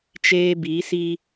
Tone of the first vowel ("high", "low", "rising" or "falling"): high